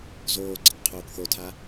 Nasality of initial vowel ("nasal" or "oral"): oral